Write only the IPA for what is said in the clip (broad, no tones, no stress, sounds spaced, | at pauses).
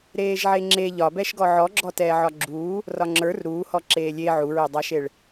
ɾ eː ʒ ʕ e ŋ͡ǁ e ʎ ɒ b ɛ ʃ ɡ ɔ ʕ ɔ ɡ͡ǁ ɔ t ɛː ʕ ɒ ɡ͡ǁ uː | r ɒ ŋ͡ǁ ə˞ r ɾ uː h ɔ ǁ eː lʲ e ʕ u ɹ e dˤ a ʃ e ɭ